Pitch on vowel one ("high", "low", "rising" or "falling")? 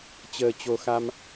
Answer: low